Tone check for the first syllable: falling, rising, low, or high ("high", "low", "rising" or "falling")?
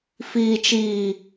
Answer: low